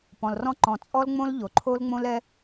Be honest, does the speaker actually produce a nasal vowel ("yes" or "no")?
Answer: yes